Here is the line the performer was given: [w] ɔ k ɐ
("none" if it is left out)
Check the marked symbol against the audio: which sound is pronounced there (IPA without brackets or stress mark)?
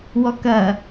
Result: w